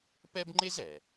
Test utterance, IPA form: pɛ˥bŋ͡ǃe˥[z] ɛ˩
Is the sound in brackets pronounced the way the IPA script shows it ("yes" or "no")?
yes